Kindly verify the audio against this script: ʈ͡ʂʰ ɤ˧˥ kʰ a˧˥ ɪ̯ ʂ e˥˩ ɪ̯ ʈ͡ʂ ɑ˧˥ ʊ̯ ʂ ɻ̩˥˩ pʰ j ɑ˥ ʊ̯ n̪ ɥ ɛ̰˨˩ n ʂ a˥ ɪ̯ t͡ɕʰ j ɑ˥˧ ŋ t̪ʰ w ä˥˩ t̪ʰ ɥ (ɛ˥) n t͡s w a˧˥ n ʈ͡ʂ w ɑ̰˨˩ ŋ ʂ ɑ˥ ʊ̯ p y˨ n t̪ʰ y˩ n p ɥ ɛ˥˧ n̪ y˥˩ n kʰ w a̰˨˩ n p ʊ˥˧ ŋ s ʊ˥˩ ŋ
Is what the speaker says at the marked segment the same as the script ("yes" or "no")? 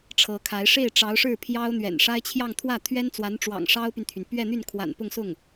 yes